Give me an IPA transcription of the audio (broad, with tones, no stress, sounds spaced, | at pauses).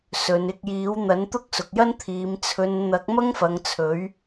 s ɵ˨ n ɪ˧ k̚ j iː˨˥ w n̪ ɐ˨˥ n t̪ ʊ˥ k̚ s ʊ˨ k̚ j ɐ˥ n t̪ʰ iː˨ m t͡sʰ ɵ˨ n n̪ ɐ˨˥ k̚ m ɐ˥ ŋ f ɐ˨ ŋ t͡sʰ ɵ˨˥ ɥ